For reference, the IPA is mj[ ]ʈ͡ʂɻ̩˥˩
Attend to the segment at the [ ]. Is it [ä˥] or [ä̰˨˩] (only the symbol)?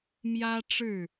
ä˥